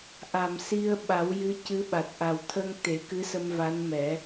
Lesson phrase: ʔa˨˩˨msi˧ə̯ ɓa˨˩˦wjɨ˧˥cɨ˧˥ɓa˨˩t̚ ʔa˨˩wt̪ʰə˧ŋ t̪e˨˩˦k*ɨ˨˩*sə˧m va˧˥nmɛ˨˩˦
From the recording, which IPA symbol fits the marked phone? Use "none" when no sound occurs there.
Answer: ɨ˧˥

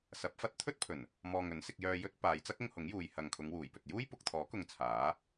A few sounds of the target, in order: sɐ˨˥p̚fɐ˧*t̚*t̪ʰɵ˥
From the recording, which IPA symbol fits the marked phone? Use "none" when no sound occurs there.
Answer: t̚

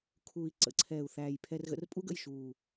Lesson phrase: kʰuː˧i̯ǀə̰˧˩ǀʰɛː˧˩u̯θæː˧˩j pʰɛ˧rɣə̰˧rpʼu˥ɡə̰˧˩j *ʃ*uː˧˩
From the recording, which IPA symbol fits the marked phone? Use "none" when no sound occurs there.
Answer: ʃ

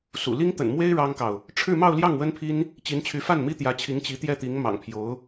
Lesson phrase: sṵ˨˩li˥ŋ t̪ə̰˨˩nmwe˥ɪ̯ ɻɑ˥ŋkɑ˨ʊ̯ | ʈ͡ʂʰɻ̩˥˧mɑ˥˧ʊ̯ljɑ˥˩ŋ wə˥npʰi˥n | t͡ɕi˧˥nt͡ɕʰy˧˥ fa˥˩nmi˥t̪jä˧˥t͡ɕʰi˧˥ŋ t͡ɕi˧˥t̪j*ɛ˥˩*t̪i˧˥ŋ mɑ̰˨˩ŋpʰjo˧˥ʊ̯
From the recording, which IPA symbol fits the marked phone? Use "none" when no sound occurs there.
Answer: ɛ˥˩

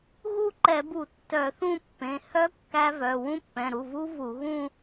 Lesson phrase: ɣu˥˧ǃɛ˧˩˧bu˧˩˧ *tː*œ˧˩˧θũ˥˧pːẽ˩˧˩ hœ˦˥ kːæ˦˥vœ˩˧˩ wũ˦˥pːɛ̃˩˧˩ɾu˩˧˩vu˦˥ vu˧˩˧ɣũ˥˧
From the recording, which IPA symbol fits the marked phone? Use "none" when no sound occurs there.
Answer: tː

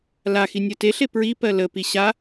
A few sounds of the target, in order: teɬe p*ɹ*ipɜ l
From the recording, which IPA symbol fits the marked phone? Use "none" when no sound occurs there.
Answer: ɹ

